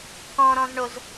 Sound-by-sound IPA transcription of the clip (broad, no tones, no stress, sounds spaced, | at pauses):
k ɔ̃ ɾ ɔ̃ z ɳ o z